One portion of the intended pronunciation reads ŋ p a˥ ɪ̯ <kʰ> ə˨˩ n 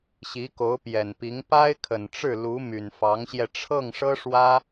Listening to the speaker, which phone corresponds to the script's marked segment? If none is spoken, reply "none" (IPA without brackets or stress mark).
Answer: kʰ